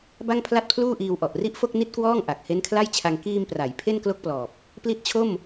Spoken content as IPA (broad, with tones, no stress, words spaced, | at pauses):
ba˥˩ŋpʰla˥˩t̚pʰluː˥˩ʔiː˧w ʔɔ˨˩ʔri˥˩ʔfo˥˩k̚ ni˥˩t̚kwɔː˥˩ŋ ʔa˨˩k̚ he˦˥nkʰla˥˩jt͡ɕʰa˧ŋ kiː˧mpra˩˦j pʰe˥˩nklo˥˩k̚plɔː˨˩p̚ | pli˦˥t̚t͡ɕʰo˥˩m